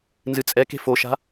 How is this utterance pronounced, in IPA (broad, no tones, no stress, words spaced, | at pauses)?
nzɨt͡sʼɛke̤ foʃa̤